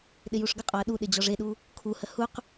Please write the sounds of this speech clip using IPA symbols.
ɗ ɪ j u ʂ ɡ ə qʼ ɔ ɐ̯ ɗ u ɗ ɪ d͡ʑ ɔ ʐ e ɗ u | kʰ u h ə h u q

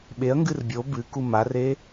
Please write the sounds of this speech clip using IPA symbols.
ɓ e ɐ̯ ŋ ɡ ɨ r bʲ o b ɨ k u m a r e

